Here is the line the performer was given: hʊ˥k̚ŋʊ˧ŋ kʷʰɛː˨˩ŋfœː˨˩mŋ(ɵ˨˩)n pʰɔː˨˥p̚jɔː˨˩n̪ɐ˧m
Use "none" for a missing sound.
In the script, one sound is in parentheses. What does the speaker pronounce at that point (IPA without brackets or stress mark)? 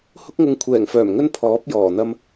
ɵ˧